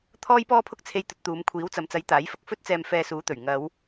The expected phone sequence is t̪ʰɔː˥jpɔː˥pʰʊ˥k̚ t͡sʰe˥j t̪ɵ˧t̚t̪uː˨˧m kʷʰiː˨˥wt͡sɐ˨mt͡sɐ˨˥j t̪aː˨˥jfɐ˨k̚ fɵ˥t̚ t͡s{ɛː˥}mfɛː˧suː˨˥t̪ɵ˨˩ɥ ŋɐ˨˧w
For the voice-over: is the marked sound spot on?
no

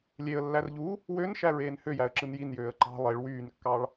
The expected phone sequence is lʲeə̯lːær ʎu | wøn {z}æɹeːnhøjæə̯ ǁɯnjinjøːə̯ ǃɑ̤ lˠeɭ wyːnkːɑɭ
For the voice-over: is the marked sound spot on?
no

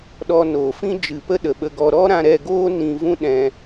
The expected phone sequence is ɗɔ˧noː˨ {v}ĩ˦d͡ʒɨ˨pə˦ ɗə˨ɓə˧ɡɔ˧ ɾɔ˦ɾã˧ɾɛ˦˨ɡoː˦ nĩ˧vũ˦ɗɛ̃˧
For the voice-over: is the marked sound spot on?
no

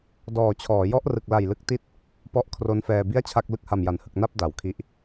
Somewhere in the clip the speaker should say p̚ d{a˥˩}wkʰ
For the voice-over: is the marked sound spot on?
no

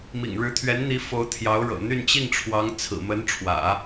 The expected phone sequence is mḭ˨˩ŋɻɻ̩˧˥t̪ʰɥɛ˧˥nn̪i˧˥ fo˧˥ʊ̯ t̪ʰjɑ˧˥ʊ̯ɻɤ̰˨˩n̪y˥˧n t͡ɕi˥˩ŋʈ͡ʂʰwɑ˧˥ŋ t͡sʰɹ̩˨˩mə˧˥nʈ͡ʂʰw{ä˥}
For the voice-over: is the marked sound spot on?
no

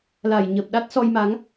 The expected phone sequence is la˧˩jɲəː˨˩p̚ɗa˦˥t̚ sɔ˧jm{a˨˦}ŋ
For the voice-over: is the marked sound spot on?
yes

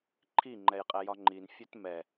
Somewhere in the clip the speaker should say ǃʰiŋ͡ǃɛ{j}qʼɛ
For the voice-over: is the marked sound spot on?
yes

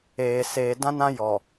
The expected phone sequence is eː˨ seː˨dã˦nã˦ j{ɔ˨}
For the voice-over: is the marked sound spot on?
yes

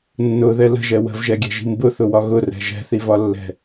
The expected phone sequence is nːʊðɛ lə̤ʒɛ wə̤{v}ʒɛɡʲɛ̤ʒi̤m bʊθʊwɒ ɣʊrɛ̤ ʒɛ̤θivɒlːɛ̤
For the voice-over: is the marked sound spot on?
yes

